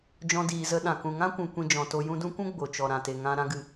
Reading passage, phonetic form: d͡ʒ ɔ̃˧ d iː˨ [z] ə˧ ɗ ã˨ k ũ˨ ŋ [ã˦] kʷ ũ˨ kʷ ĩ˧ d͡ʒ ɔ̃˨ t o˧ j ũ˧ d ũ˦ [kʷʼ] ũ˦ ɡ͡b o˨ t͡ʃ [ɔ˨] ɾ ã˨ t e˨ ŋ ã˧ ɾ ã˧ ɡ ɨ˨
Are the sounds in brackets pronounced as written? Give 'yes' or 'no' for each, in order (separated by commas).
yes, yes, no, yes